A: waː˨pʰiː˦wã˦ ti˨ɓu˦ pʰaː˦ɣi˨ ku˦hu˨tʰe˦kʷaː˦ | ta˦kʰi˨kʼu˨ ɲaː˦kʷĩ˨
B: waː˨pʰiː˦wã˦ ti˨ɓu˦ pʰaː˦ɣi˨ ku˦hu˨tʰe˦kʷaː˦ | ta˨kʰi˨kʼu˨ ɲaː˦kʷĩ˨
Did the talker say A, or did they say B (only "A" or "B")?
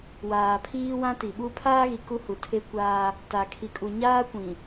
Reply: B